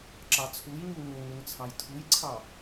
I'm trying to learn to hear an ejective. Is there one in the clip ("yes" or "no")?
no